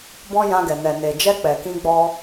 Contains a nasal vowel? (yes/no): yes